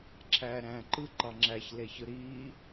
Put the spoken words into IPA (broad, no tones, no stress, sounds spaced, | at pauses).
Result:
ǁʰ æː ɾ æ̃ː ǃ ɯ ǃ ɑ ŋ͡ǁ æ ç l e ç ɯ ɾ iː